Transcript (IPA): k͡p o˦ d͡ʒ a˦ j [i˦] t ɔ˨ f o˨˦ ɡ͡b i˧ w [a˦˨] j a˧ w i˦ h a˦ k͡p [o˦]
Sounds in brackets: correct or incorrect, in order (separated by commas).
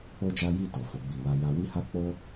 incorrect, incorrect, correct